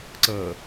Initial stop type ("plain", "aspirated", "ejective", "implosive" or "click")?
click